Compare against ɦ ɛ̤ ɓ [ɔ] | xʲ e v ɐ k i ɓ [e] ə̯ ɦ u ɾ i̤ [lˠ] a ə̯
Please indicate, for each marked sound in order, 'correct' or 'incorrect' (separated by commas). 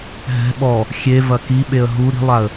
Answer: correct, correct, correct